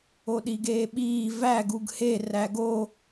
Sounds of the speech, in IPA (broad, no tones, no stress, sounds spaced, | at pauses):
o ɗ i ɡ eː ɓ iː v æ ɡ u ɡ h e r æ ɡ o